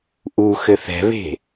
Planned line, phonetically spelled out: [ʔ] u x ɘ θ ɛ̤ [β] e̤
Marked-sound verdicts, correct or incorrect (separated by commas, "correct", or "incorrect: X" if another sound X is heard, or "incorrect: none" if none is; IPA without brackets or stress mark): correct, correct